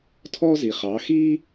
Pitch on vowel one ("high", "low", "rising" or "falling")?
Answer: high